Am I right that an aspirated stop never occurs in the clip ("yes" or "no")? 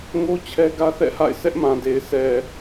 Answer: no